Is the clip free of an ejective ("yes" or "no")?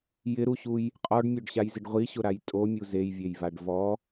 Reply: no